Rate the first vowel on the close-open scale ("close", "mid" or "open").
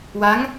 open